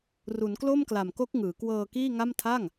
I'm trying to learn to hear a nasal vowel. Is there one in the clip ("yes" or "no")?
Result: no